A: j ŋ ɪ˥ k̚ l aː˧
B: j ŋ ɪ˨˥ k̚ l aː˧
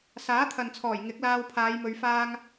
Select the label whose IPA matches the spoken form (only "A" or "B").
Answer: B